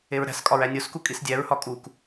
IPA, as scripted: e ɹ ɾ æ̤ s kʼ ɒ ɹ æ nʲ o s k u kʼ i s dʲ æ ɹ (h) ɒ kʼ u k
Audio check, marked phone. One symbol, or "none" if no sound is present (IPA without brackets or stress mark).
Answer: h